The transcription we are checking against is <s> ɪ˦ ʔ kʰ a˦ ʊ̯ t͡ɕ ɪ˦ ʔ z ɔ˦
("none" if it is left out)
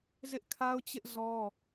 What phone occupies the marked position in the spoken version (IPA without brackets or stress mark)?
z